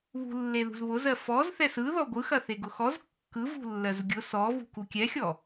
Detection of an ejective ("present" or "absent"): absent